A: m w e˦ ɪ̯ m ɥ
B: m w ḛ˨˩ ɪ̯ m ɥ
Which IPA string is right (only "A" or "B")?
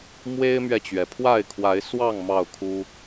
A